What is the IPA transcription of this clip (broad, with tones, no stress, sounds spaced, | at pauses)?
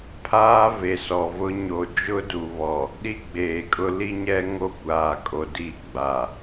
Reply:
pʰ aː˦ v e˨ s ɔ˨ v ʊ˦ ɲ o˨ d͡ʒ ʊ˦ d u˨ β ɔ˨ | ɗ i˦ ɡ͡b eː˨ kʼ ʊ˦ l i˦ ɲ ɛ˦ ŋ o˦ kʷ aː˨ kʼ o˨ d i˦˨ ɡ͡b a˨